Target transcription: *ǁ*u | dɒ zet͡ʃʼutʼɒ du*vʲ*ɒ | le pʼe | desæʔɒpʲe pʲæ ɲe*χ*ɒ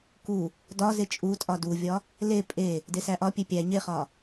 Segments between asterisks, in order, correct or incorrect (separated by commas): incorrect, correct, correct